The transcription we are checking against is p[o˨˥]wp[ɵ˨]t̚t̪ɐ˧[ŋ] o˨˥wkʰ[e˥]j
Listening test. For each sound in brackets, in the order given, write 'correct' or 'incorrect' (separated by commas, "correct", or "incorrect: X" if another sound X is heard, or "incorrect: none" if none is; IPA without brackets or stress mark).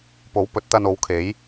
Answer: correct, incorrect: ɵ˨˥, incorrect: n, incorrect: e˨˥